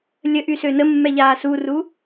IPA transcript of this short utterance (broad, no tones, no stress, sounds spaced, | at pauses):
lʲ ə ʔ y s ø n ə mː ɛ ʎ aː s u r u